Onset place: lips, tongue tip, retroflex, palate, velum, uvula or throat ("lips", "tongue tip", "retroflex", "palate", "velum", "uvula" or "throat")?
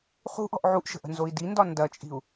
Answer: uvula